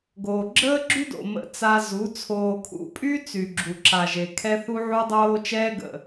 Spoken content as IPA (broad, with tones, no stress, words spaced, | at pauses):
ɡoː˨ɡ͡ǁəː˦ɡ͡ǁy˦do̰˨ mə̰˦˨t͡sa˦ zu˨˦ t͡sʰoː˨kʰṵ˨pʼy˦ t͡sy˨ɡ͡ǁu˨ǁa˨ʒe˨ kʰɛ˦θu˦ʕu˦ dˤoː˦t͡ʃɛː˦ɡə̰˨